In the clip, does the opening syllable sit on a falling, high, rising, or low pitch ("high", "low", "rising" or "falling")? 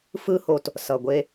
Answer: high